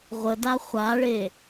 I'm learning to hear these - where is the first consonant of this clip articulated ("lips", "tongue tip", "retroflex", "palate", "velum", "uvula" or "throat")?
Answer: uvula